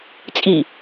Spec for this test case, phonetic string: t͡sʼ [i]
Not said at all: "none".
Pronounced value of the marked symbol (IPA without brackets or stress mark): i